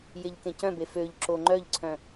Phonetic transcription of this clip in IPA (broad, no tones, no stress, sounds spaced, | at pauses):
j e ʎ k ẽ c œ̃ b e f ø ʎ ǁ o ŋ͡ǃ œ ʎ ǀʰ œ̃